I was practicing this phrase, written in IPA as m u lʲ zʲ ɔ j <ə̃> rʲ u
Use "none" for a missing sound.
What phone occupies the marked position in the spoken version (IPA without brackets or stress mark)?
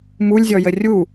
ə